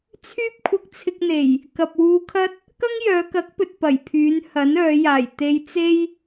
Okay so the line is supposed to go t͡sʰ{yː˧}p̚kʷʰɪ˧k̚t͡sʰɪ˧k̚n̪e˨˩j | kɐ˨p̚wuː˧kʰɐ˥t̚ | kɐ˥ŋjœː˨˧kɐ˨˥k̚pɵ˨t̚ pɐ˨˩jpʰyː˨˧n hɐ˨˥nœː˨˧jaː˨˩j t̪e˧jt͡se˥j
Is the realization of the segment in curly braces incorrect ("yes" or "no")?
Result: yes